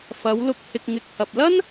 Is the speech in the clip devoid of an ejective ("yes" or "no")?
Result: yes